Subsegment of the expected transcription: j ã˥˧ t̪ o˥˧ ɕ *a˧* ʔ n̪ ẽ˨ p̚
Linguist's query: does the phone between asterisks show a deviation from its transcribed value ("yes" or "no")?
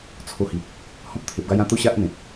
yes